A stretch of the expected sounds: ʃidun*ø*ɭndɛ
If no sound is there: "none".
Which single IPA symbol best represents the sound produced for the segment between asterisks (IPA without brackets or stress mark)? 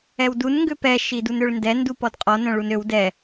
ø